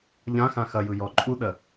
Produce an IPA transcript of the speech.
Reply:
ʎ ã x ã x ɐ j ɯ j ɔ ǃʼ u ɗ ɜ

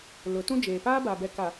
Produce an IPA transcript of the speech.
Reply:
l ʊ˨˦ t ũ˦ d͡ʒ eː˨ p aː˦ b a˨ b ɛ˨ k a˨

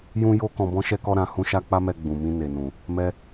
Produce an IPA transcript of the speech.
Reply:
j ũ˦ j o˦ k ɔ̃˧ b ɔ̃˦ ʃ ɛ˦ k ɔ˦ ɾ ã˧ h ũ˦ ʃ a˦ k͡p a˦ m ɛ˧ ɡ͡b ũ˨ m ĩ˧ n e˨ n ũ˨ | m ɛ˧

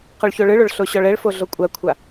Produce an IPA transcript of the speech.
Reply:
q ɔ ɭ ç o ɭ ɯ ɭ o ɭ ɬ o ɕ ɔ ɭ ɛ ɭ f o ɮ o kʷʼ a kʷʰ a

